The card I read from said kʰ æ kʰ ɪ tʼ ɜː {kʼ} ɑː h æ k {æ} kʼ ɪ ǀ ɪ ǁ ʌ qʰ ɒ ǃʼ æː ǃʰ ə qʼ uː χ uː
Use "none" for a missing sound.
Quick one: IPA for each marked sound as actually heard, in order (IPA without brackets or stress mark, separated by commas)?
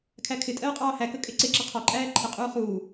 qʼ, ə